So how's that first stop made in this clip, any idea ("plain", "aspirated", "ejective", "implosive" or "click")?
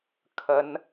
aspirated